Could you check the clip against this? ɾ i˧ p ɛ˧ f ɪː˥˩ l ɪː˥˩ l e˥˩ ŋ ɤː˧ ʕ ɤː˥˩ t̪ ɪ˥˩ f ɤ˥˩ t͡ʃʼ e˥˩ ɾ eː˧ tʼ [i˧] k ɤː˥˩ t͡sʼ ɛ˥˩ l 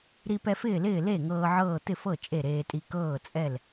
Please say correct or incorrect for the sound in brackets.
correct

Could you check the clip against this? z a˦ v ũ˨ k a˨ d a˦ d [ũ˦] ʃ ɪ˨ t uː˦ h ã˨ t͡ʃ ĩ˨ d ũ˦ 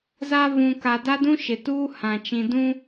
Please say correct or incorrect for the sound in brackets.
correct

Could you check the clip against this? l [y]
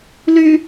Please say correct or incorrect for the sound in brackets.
correct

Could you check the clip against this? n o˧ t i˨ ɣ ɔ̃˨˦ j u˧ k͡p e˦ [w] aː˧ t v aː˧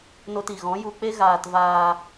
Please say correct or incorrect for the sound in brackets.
incorrect: ɣ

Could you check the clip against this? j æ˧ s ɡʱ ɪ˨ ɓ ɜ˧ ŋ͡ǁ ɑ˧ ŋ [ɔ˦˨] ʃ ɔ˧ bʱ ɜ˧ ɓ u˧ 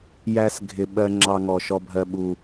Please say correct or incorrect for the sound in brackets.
incorrect: ɔ˨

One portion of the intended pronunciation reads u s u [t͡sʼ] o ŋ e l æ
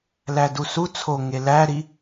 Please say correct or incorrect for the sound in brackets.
incorrect: t͡sʰ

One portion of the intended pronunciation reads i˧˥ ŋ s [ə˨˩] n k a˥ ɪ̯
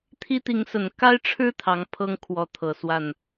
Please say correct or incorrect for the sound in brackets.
correct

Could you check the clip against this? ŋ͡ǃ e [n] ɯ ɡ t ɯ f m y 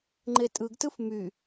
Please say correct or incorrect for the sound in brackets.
incorrect: tʼ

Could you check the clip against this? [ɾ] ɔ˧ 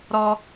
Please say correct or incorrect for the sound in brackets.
correct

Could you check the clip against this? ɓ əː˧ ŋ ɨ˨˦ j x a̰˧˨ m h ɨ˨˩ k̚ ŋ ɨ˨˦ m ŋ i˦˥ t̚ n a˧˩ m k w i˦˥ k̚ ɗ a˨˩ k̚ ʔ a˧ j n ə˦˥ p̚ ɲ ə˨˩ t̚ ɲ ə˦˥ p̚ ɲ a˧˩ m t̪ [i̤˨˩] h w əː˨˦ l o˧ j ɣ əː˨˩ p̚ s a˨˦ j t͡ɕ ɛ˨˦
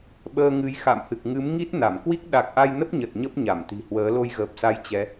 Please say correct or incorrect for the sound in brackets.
correct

